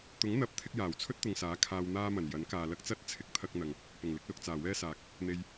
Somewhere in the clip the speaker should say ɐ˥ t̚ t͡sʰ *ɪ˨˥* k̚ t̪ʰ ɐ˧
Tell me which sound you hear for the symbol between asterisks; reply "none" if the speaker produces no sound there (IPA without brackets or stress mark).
ɪ˨˥